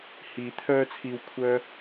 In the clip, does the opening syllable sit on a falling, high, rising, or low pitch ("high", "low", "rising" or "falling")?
rising